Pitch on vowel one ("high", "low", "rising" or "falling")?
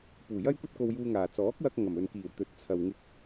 low